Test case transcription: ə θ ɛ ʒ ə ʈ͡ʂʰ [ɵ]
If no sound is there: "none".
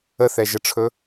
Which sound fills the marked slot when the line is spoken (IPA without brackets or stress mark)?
ɵ